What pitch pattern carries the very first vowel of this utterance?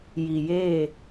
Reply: low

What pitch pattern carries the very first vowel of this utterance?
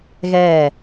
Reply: falling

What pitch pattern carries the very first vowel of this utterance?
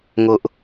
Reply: high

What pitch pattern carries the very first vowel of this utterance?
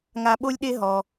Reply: low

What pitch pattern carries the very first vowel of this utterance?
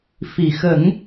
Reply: low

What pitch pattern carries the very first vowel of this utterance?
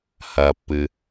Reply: low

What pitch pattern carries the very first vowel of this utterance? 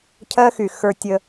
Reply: high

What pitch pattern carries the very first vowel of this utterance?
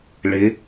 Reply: rising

